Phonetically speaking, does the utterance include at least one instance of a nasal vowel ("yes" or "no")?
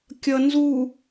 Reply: no